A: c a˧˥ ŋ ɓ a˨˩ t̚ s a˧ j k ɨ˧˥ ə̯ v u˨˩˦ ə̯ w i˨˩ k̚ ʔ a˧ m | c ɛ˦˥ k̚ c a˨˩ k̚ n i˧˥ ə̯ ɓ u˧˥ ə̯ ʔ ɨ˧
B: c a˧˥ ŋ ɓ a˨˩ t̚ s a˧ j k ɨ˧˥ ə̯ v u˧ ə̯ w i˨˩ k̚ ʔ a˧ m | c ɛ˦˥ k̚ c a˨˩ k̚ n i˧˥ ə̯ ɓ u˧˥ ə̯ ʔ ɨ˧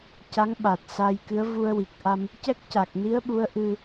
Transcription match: B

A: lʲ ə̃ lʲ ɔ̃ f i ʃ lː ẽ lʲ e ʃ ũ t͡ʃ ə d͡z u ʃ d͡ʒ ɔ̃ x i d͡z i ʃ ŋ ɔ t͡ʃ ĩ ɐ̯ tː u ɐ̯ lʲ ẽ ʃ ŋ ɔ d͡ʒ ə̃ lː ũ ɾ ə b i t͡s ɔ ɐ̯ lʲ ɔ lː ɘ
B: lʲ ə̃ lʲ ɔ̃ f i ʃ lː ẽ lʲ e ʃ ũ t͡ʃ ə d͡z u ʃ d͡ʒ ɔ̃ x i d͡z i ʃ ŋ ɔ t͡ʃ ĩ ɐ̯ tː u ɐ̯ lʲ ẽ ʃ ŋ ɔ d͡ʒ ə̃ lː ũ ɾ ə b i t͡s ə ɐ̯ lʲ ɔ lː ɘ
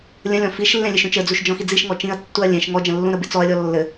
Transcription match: A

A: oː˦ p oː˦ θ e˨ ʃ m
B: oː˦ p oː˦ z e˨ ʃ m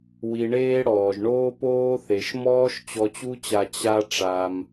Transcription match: A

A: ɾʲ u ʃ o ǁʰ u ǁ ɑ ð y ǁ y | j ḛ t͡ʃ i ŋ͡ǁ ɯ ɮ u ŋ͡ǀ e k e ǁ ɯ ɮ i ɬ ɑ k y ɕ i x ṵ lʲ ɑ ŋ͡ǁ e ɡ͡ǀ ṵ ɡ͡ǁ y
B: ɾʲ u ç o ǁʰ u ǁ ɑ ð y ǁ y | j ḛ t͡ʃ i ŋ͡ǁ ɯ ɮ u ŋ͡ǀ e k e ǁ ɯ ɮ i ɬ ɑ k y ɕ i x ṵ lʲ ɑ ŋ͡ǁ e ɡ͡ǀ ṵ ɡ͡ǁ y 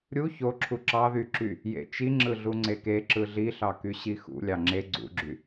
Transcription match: B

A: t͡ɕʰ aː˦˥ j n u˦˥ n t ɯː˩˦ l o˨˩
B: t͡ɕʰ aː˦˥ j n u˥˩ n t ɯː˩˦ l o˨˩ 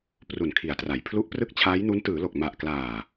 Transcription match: A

